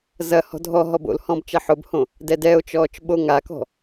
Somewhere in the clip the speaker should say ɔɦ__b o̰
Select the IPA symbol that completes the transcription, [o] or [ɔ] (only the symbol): ɔ